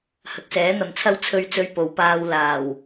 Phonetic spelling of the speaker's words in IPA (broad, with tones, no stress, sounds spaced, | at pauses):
h ɐ˨ k̚ s ɛː˨˥ n̪ ɐ˨ m t͡sʰ ɐ˥ w t͡sʰ ɵ˧ ɥ t͡s ɵ˧ ɥ p o˨˧ w p aː˧ w l aː˨˩ w